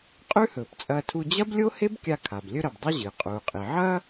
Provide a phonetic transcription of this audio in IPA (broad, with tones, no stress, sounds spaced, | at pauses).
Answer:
qʼ ʉ˥ h ɵː˩ p t͡sʼ ɐː˧ tʰ u˧ d͡ʑ ɐ˥ b lʲ o˥ h e˥ b kʲ a˧ kʰ a˩ b lʲ ɵ˧ ɾ ɐ˩ b dˤ ɨ˥ ʑ ɨː˩ qʼ uː˩ qʼ i˩ ʕ ɐː˥